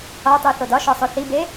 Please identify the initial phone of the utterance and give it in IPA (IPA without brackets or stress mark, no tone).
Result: ɒ